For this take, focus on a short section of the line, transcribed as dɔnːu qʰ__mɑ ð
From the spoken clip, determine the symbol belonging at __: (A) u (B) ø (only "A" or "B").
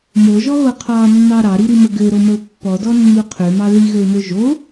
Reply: B